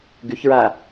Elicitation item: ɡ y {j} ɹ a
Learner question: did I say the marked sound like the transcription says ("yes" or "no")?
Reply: no